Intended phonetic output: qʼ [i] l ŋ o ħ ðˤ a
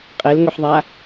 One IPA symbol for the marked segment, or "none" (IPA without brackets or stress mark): e